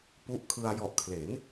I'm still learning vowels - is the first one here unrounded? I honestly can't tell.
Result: no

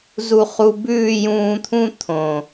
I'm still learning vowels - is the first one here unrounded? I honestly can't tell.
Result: no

